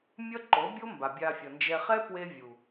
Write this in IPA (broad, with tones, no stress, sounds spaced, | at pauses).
mʲ ʌ˦ ǃ o˨˦ bʲ o˦ m b a˨ bʲ a˧ fʲ ʌ˨ n d͡ʒ ɛ˧ χ ɛ˦ p w e˧ vʲ u˨